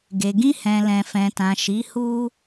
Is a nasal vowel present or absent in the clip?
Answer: present